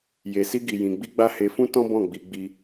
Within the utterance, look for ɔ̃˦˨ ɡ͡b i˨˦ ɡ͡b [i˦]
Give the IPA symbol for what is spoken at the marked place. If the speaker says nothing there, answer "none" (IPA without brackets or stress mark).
i˦